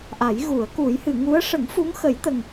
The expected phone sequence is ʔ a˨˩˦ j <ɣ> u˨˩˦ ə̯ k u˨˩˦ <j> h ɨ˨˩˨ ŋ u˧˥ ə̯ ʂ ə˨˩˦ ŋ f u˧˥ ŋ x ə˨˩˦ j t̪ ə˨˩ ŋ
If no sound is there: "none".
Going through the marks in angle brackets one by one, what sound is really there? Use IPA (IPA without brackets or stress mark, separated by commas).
ɣ, j